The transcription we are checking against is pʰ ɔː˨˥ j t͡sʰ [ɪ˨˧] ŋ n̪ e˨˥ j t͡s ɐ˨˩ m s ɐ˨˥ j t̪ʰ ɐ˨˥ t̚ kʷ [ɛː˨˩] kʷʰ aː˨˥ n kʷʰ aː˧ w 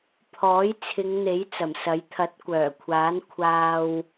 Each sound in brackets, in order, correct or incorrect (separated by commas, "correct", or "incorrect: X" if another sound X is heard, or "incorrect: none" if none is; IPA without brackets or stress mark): correct, incorrect: œː˨˩